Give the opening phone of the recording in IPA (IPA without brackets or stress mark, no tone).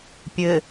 pʲ